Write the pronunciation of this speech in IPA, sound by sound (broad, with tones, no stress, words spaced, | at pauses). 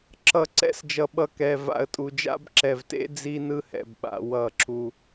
ǁʌ˨ ǀɛ̰˦sd͡ʒʌ˨ɓʌ˨ kɛ˨ va̰˨ə̯tʼu˨d͡ʒa̰˦b ǁɛ˨vtḛ˦ d͡zi˦nɯ˦hɛ̰˨bɓa̰˨ wʌ˦˨ǁu˦